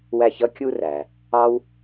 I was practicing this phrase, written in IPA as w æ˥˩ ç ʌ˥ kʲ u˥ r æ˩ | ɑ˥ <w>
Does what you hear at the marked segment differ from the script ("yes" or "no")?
no